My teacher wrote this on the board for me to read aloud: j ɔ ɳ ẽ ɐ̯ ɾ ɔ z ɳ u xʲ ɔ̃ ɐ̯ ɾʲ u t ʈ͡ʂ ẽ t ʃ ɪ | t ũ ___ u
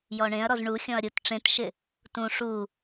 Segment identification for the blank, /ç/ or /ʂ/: ʂ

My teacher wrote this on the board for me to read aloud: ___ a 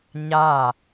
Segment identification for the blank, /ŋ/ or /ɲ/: ɲ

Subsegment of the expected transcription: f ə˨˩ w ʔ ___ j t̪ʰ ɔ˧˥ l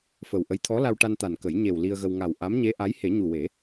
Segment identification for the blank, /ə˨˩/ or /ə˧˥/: ə˧˥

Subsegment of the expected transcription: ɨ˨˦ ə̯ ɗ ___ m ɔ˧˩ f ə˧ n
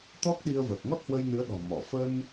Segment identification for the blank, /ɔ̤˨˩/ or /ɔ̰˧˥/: ɔ̤˨˩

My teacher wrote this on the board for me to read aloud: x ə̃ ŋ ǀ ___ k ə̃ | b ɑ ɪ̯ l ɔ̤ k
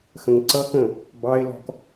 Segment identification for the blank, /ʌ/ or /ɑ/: ʌ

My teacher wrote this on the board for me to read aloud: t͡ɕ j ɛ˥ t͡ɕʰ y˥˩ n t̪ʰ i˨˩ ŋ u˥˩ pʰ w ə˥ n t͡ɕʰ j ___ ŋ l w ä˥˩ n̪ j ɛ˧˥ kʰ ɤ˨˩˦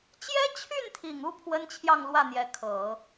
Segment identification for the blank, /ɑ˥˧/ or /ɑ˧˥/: ɑ˥˧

